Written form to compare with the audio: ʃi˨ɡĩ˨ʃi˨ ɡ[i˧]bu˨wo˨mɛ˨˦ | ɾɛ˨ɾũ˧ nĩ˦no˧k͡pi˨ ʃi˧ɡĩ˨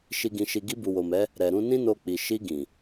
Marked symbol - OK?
yes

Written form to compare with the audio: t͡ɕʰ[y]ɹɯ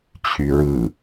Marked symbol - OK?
yes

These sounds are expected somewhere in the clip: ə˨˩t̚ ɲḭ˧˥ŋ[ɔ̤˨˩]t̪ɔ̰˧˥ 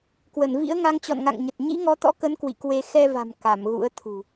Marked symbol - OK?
no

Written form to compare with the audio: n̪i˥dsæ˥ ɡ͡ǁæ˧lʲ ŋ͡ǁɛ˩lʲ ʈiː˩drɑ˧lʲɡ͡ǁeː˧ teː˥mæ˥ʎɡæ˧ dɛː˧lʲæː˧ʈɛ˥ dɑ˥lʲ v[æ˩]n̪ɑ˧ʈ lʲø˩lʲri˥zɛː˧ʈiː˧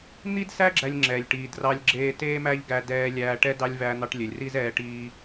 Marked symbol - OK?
no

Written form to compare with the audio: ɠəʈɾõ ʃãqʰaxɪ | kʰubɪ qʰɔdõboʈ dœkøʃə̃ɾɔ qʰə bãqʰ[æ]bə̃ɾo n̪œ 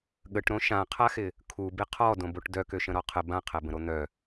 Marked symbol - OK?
yes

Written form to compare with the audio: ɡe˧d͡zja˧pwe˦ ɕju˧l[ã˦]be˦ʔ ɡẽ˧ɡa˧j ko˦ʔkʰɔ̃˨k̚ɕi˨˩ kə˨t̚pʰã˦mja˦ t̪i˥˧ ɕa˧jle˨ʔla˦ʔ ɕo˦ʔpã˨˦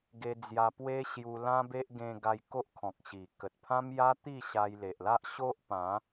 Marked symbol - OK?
yes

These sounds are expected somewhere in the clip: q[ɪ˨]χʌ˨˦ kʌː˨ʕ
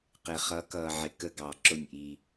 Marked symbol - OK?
yes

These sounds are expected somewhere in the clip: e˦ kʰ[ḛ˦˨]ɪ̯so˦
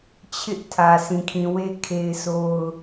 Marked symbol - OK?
no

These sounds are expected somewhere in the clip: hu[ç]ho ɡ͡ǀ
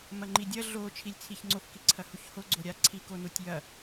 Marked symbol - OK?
yes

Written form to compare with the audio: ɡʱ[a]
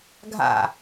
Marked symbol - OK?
no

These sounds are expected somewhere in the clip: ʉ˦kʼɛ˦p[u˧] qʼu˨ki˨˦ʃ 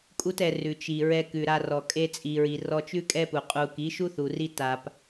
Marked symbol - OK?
no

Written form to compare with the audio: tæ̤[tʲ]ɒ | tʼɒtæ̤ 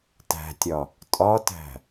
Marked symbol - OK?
yes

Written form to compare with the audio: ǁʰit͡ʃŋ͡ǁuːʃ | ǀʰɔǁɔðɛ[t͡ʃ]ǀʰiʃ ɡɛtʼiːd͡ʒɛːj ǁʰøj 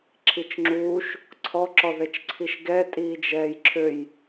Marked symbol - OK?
yes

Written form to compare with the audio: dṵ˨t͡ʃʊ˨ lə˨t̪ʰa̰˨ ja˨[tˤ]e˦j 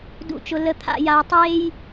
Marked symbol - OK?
yes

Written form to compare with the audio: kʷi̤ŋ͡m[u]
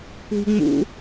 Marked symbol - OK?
no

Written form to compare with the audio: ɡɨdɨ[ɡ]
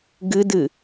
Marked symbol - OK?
no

